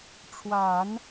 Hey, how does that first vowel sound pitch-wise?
low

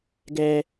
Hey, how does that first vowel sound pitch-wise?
high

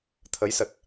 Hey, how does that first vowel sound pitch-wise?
rising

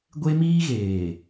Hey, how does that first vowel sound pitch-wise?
high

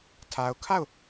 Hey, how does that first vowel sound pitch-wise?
low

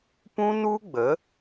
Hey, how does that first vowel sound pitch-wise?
high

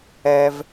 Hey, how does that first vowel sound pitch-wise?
high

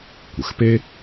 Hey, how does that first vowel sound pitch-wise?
low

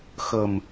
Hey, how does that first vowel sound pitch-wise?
low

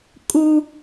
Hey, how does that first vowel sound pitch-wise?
high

